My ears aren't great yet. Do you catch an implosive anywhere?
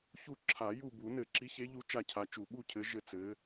yes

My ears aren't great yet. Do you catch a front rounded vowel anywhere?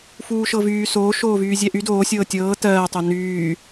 yes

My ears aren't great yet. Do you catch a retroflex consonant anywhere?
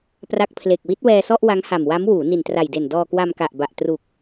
no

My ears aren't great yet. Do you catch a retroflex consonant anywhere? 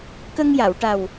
yes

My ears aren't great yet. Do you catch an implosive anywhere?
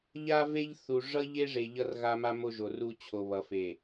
no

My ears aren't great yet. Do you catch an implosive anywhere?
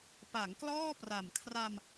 no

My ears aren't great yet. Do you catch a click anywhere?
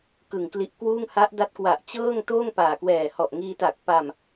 no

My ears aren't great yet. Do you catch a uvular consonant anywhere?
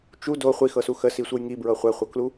yes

